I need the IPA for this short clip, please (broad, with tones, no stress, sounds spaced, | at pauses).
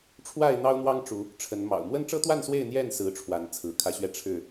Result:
ʈ͡ʂʰ w a˥˨ ɪ̯ n̪ ɑ˦ ʊ̯ n̪ w ɑ˦ ŋ ʈ͡ʂ u˨˦ | ʈ͡ʂʰ ə˨˦ n m ɑ̰˨˩ ʊ̯ m w ə˦ n ʈ͡ʂ ɤ˦ t̪ w a˥˨ n s w e˥˨ ɪ̯ n̪ j ɛ˥˨ n s ɹ̩˨˦ ʈ͡ʂʰ w a˨˦ n t͡sʰ ɹ̩˨˦ kʰ ä˦ ɕ ɥ ɛ˥˨ ʈ͡ʂʰ ɻ̩˥˨